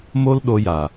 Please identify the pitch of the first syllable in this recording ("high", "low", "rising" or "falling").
high